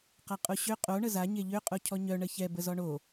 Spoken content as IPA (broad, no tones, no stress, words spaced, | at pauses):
qaqʼoɕø qʼo ɳəza ɲeʎø qʼocʰɔɲœ ɳəçɛ bəzɔɳo